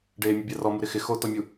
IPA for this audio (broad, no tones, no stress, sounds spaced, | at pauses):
ɖ eː mʲ u bʲ a r ɔ m u ɾ ɪ x ɪ x o t ɔ mʲ u